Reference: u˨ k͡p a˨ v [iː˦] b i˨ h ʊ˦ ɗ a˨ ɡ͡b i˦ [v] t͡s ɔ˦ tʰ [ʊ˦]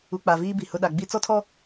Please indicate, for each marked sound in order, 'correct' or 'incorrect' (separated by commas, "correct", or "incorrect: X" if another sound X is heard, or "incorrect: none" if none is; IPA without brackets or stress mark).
correct, incorrect: none, incorrect: ɔ˦